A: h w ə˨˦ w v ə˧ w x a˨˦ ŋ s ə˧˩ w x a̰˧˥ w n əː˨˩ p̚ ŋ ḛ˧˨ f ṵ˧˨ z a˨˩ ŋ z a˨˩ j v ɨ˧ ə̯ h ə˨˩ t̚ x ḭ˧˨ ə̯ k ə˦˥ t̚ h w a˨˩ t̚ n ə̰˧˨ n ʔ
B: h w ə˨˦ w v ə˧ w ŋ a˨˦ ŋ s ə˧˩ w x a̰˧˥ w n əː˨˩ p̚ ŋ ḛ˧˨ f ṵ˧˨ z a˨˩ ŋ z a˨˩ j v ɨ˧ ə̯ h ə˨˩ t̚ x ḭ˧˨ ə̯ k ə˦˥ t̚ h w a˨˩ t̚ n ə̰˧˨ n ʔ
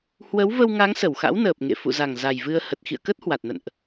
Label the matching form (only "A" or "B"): B